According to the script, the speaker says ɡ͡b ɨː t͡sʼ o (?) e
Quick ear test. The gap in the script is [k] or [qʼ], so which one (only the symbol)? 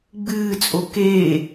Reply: k